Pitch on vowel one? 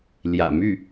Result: low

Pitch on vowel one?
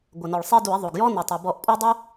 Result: low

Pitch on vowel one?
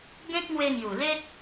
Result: high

